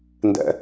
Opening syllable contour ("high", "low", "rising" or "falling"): high